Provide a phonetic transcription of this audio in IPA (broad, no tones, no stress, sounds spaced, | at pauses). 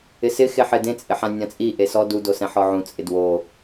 ɪ s ɪ x e ħ ɪ d ẽ t͡sʼ ɪ ħ ã nʲ ã t͡sʼ i ʔ e s ɔ d u d o s ɛ̃ ħ ɔ ʕ ũ t͡sʼ ɪ d w o